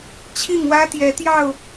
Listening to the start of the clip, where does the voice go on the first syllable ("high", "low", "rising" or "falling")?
falling